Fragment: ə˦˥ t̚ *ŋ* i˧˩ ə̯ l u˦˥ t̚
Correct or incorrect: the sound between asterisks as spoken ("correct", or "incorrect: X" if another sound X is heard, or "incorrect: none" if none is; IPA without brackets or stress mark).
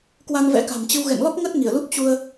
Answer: correct